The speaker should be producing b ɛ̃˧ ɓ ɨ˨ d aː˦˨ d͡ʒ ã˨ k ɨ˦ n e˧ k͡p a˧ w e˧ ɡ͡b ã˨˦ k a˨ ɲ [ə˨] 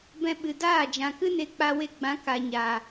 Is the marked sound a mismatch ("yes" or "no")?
yes